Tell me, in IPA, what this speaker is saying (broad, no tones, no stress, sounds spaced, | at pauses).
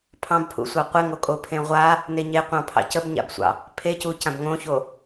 pʰ ɑ̃ b pʰ ṵ sʷ ɑ qʷ ɪ ŋ o kʼ o pʰ ẽ ʁʷ a | n e ɲ e qʷ ɑ̃ pʰ ɑ̰ c ə b ɲ a̰ b sʷ ɑ̰ | pʰ e c u c ã b ŋ õ ç o